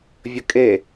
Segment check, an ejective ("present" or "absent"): present